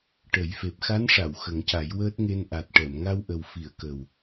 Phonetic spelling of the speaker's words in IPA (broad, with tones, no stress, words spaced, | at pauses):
ʈə˨˩˦jfe˨˩p̚ xa˧˥nʂa˨˩˨w xə˨˩˦ŋca˨˩˦jwəː˦˥t̚ŋe˧n ʔa˨˩t̚ʈɛ˨˩˨m ŋa˧wʔə˨˩w fi˨˩˨ə̯kə˨˩w